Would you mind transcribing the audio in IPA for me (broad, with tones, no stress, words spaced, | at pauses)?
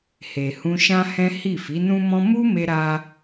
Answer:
he˨hũ˧ ʃã˦hɛ̃˦ hi˦˨ fi˨˦nũ˦mɔ̃˦ mu˦ me˦ɾa˦